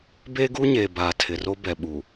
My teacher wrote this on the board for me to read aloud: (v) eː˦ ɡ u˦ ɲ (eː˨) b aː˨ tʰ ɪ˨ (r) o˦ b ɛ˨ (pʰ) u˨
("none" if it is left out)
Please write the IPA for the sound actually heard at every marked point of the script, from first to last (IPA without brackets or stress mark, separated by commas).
b, eː˨, r, ɓ